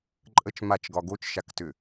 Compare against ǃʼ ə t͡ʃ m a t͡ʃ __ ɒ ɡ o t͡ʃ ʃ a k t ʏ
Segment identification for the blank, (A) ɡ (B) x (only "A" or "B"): A